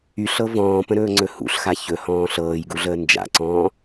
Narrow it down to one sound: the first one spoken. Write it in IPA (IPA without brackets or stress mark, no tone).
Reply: y